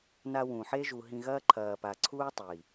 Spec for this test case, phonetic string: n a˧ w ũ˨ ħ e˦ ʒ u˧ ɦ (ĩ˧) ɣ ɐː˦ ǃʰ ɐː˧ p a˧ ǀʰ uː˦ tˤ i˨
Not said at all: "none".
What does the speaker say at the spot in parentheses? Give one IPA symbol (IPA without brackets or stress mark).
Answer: ĩ˧